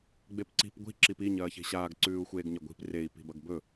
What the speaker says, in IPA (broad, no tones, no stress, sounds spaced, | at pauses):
ɡ͡b e p ǀ i̤ p ɡʷ i̤ ǁ i p i ɲ ɐː ç e̤ ɕ aː ɡ ǀ ʉː u̯ xʷ eː ɡ ɲ ɐ ɡʷ i̤ p r e i̯ p i̤ b ɐ ɡ b ɵ